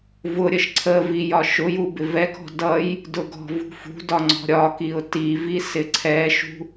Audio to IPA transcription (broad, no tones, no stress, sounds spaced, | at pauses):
v ʊ ɾʲ ə ʃ ǀʰ ə v i j ɒ ʃ ʊ j u b ɪ v ɛ k ɔ̤ d ʌ j | d ʊ ɡ ɔ̤ v ṳ f ṳ d ɒ ŋ͡ǀ ɔ̤ ɾʲ ɒ k i ʊ̯ t i v i s ɪ ǀʰ ɛ ʃ ṳ